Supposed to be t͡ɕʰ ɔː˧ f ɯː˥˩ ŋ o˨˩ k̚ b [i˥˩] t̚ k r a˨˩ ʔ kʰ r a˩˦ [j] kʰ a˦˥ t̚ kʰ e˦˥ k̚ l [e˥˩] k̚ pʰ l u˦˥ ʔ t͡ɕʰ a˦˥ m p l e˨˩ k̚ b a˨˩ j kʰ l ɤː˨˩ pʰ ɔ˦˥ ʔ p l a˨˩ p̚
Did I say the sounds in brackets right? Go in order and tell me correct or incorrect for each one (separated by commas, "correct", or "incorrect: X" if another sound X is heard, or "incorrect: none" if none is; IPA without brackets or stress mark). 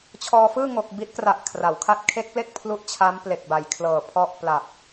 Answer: incorrect: i˦˥, incorrect: w, correct